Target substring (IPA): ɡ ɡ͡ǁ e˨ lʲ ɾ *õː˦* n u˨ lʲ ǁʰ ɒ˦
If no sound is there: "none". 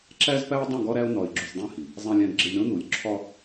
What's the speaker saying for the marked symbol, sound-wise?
õ˦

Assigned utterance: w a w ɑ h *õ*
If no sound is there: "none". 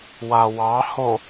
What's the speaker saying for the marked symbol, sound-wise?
o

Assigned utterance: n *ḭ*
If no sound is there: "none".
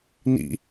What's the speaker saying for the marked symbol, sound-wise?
ḭ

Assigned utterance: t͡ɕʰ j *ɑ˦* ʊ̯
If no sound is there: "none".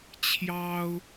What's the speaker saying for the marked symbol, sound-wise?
ɑ˦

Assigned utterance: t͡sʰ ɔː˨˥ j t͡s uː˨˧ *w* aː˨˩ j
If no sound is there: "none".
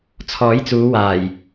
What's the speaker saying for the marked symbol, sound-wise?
w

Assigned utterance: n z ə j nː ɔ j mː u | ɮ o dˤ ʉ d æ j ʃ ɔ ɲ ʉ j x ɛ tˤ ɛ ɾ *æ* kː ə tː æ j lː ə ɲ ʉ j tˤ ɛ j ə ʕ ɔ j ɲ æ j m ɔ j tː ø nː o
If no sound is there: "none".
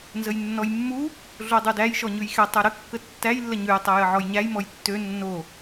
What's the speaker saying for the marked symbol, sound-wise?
ə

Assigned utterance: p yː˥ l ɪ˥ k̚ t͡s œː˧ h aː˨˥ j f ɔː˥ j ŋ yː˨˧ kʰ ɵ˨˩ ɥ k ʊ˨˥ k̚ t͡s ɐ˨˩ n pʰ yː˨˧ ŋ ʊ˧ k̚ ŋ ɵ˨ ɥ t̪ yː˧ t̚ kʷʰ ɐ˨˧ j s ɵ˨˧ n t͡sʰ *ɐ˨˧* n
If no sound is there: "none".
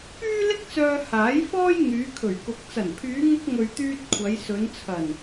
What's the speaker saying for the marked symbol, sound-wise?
ɐ˨˩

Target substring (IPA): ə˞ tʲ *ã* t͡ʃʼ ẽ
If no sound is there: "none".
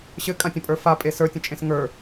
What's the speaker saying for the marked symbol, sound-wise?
ə̃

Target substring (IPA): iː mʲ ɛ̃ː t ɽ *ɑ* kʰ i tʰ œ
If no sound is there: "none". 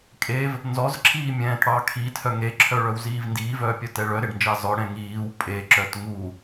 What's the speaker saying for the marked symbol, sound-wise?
ɑ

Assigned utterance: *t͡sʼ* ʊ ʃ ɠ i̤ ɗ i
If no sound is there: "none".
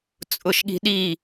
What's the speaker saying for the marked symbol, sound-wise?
t͡sʼ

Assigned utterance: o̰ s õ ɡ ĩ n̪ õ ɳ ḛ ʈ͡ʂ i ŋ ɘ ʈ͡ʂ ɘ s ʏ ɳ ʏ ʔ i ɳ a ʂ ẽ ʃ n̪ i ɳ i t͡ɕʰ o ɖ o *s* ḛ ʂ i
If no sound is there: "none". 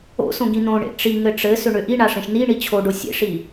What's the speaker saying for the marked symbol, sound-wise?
sʲ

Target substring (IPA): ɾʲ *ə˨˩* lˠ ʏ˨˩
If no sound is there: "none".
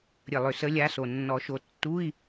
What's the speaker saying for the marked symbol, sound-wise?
ə˨˩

